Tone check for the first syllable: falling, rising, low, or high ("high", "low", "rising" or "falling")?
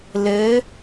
rising